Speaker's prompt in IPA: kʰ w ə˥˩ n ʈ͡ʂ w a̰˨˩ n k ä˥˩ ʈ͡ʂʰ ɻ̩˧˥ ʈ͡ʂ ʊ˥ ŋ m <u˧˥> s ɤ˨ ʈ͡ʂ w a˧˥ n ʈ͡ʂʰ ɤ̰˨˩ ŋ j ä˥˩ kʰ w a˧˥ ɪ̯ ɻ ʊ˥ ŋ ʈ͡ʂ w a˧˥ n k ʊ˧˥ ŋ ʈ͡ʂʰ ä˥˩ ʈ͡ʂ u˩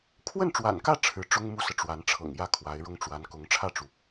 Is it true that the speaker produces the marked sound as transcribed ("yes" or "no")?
no